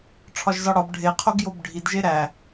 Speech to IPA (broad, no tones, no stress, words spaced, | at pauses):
ʈ͡ʂʰɒʒzɒɽɒb ɖʱeqʰoɡjob ɖʱidʒe ɾæ